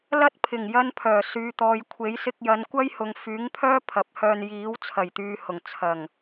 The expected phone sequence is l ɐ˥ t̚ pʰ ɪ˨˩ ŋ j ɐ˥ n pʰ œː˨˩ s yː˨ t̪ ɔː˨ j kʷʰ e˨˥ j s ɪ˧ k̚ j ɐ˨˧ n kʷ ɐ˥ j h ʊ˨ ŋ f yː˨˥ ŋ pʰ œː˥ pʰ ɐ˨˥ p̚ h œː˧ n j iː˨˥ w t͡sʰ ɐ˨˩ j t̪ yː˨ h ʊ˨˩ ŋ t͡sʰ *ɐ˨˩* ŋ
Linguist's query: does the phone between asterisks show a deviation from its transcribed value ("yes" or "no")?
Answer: no